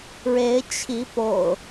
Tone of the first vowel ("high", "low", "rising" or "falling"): rising